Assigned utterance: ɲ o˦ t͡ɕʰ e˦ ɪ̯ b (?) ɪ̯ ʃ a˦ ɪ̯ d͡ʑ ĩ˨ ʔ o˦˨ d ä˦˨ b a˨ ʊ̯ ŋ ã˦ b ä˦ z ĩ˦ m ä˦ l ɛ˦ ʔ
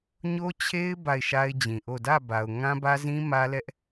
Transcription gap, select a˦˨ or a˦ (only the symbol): a˦˨